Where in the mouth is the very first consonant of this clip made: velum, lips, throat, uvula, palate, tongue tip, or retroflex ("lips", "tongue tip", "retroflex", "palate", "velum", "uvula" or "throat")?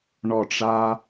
retroflex